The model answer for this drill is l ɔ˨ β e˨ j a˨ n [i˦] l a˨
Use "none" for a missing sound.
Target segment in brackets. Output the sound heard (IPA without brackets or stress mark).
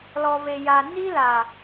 i˦